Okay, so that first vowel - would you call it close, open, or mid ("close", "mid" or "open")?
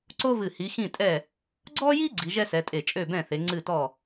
mid